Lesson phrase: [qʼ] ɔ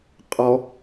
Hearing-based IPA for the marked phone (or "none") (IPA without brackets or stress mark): qʼ